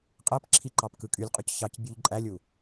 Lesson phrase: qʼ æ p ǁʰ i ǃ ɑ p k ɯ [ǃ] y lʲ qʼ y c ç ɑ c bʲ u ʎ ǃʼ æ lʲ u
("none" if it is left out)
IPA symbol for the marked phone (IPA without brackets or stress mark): kʼ